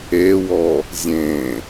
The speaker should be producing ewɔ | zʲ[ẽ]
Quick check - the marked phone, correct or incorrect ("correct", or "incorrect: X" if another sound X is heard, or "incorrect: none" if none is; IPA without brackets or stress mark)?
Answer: correct